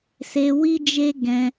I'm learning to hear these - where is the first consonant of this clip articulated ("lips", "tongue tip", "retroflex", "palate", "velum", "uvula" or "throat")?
tongue tip